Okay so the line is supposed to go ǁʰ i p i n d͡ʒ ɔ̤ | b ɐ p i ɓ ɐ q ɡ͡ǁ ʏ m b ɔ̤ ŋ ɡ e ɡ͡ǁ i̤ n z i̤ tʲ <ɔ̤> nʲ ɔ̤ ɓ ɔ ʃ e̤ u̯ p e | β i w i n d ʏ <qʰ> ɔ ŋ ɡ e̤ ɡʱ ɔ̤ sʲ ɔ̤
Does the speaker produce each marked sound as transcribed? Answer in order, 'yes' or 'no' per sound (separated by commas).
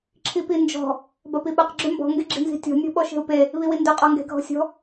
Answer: yes, no